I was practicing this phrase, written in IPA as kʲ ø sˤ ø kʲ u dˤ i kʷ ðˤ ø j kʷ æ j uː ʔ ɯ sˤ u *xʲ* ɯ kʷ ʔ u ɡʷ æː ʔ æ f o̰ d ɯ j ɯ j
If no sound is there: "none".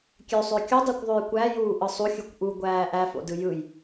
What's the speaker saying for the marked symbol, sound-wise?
xʲ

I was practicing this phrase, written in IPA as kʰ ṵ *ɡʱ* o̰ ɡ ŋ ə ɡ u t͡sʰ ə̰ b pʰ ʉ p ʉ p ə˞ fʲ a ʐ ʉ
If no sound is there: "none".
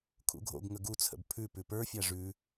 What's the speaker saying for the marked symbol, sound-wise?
ɡʱ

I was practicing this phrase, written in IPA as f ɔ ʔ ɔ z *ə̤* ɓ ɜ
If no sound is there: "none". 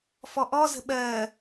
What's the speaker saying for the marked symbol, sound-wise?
ə̤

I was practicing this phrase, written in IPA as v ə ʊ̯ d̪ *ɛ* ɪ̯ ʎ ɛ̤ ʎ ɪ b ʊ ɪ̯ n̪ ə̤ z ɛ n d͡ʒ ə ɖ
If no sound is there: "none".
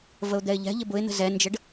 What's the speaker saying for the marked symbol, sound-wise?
ɛ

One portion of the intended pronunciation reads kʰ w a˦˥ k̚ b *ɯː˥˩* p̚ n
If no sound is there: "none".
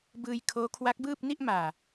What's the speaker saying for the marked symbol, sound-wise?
ɯː˥˩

